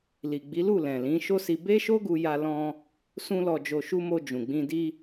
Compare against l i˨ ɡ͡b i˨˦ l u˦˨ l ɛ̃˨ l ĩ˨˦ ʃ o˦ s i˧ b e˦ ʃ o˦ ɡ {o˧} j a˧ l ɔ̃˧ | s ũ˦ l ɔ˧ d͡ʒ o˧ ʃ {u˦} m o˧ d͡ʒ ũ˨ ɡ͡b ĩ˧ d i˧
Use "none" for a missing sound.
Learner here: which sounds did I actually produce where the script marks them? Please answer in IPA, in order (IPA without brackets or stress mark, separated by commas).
u˧, u˦